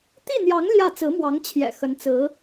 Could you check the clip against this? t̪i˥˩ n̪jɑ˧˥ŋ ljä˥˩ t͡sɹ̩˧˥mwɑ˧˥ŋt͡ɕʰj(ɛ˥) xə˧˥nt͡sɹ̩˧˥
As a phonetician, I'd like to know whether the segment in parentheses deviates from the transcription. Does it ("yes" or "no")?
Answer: yes